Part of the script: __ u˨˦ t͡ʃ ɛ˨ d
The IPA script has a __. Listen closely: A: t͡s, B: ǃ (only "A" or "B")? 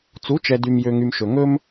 A